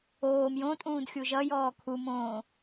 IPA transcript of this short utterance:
oːm jõ tʼũːdxʲuʒʌjɔː kʰumõː

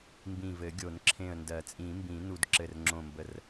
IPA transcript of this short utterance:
mbĩ˧˩vɘ˨˩˦ɡʲo˨˩˦n ǁʰẽ˧˩ə̯ndɜ˨˩˦t͡sʼĩ˨˩˦mbĩ˨˩˦ nu˨˩˦dǁɘ˧˩rŋ͡ǁõ˧˩mbə˧˩r

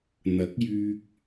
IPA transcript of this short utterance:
n̪ɐ˨˥k̚jyː˧k̚

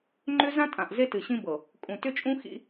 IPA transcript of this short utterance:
ŋ͡ǃʏ˦ zã˦tʼã˨ʔ ze˦tɨ˨ɕĩ˦bɤ˨ | kʼũ˨tʏ˦t͡ʃʼũ˦ xḭ˦

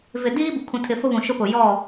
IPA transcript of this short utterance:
vɪ˨diː˦ bu˨kʰũ˨tʰɪ˨ fʊ˦βũ˨ ʃʊ˦pʊ˨ jɔ˦˨

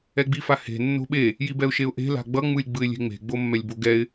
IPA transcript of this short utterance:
ɛɡ͡bifahe̤ nːo̤ɓe | jibɛʊ̯ʃeʊ̯ʔe̤ la̤ɡ͡bʌ ŋ͡mɯlʲɡ͡bɯɪ̯lʲe̤ŋ͡me̤ ɡ͡bomːɛlʲboɡɛɪ̯

